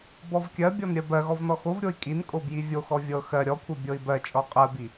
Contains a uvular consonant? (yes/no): yes